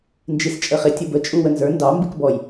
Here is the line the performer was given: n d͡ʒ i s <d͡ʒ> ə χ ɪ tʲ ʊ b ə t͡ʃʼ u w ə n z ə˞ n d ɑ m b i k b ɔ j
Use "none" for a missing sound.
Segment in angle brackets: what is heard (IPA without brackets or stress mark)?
t͡ʃʼ